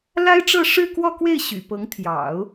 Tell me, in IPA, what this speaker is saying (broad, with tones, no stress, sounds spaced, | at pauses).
l a˥ ɪ̯ ʈ͡ʂ ɤ˥˧ ʂ ɻ̩˥˧ k w ɔ˥˧ k w e˥˩ ɪ̯ ɕ y̰˨˩ p ɤ˧˥ ŋ t̪ʰ j ɑ̰˨˩˦ ʊ̯